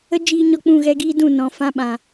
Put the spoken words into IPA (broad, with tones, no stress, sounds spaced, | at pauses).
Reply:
ə˦ d͡ʒ iː˧ ɲ ɔ˦ k͡p ũ˦˨ ɣ ɛ˦ ɡ iː˦ d ũ˦˨ n ɔ̃˨ f ã˦ ɓ ã˨